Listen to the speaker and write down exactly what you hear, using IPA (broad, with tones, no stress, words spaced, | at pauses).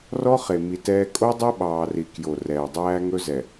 rɔ˦χe˨ mi˨ tɛː˦ kʼo˦dˤe˦ ɓɑː˨ri˨ kjo˨ rɛː˨dˤæː˦ ŋɵ˦ zɛ˨